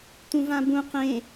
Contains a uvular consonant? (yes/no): yes